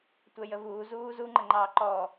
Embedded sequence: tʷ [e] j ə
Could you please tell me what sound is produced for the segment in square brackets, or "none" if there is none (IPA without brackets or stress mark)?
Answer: ɛ